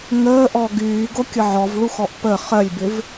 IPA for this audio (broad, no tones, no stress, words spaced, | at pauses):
ŋəː ʔɔɡyːɡo kʲəʕɔvɭuxɔʔ pə χɜlʲbɪv